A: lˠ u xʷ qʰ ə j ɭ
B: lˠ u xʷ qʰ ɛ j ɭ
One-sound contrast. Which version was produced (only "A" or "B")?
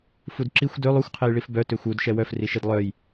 B